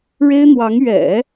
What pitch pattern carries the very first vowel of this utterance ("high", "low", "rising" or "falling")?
high